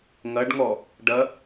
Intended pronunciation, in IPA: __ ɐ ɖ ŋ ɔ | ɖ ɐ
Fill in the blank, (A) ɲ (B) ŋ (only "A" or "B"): B